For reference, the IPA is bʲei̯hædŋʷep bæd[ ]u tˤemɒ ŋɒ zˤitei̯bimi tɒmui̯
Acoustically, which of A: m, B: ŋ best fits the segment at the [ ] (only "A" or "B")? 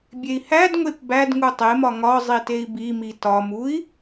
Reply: B